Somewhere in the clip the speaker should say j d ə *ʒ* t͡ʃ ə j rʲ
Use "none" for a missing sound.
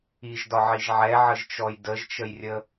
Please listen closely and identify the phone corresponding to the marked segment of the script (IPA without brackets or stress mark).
ʒ